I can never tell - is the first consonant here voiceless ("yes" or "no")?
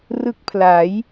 no